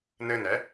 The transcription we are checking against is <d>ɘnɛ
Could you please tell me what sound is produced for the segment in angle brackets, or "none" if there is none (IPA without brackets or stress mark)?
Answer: n